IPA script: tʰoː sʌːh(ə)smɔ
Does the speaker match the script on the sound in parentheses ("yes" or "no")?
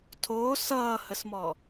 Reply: yes